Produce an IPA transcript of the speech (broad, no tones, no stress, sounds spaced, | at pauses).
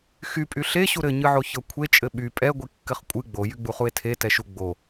x y pʼ y ɬ e ɕ u ɾ ɘ ɲ ɨ ʕ o ç ɤ kʷʰ e t͡ʃʼ ɘ ɓ y pʼ ɛ ɡʷ i kː ɘ χ kʷʼ ɨ ɡ͡b o j y ɡ͡b u χ u e̯ tʰ e t ɛ ʃ u ɡ͡b o